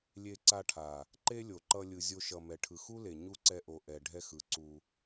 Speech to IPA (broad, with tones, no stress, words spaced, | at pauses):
lʲe˧ǀa˧ʈʰa˨ | ǃe˦lʲo˨ǃʌ˧ lʲɯ˨zʲo˧ʃʌ˨ mɛ˨ʈʰɯ˨xu˦le˨ ɲu˦ǀɛ˧ʔo˨ ʔɛ˨ ɖʱɛ˧xɯ˨˦ ǀu˧